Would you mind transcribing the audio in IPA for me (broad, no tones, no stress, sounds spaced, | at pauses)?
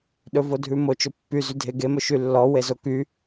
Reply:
ɗ ɵ v o dʱ ʉ m o t͡ʃ ɵ pː y z y dʱ e ɡ e m ɵ ʃ y lː ɔ w e z o k y